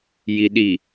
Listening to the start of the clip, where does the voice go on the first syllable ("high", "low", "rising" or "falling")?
low